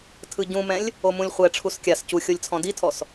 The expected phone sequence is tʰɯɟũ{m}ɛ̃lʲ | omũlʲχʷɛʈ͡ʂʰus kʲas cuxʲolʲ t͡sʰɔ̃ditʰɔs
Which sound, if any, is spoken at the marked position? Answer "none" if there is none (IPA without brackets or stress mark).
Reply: m